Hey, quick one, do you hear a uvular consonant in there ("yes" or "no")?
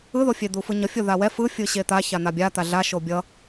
no